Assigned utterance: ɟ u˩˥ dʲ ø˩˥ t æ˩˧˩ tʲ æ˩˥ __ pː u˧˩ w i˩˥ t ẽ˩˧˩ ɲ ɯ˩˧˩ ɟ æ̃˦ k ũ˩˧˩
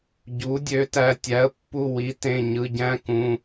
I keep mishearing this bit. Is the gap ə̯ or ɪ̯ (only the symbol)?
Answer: ə̯